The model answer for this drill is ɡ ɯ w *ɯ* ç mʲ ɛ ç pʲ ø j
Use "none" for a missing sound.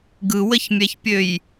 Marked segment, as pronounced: ə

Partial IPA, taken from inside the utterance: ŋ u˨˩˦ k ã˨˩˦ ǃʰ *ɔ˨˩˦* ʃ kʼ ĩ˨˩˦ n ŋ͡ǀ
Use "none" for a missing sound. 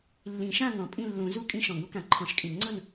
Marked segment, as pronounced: ɔ̃˨˩˦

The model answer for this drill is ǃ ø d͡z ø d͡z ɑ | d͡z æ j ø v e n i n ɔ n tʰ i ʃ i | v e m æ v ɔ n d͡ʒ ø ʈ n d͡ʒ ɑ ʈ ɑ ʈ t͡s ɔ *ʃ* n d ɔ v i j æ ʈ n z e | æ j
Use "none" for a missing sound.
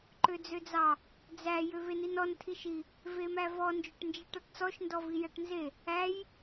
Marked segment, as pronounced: ʃ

